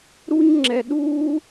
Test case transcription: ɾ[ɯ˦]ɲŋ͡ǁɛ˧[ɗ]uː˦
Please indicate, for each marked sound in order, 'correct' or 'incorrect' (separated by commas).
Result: incorrect, correct